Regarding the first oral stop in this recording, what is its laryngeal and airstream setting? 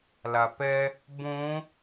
plain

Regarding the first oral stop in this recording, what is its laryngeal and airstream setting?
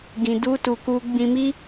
plain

